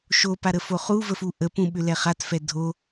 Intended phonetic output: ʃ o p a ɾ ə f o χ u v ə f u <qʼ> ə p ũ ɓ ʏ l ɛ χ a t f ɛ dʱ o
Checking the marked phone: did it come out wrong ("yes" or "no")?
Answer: yes